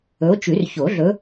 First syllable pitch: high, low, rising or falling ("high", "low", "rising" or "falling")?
rising